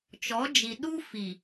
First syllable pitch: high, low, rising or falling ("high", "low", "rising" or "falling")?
rising